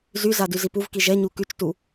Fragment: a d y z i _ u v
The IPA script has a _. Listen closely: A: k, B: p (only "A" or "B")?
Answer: B